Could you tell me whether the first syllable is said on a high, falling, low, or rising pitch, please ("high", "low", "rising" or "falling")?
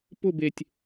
falling